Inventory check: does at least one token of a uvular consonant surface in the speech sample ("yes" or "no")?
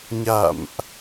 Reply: no